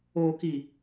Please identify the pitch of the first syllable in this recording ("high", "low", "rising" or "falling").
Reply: low